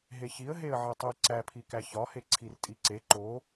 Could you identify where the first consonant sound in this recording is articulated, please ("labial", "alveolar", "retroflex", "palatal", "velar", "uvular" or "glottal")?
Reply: glottal